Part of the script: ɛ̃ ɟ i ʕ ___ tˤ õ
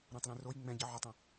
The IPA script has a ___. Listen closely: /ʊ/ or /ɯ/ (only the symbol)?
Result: ʊ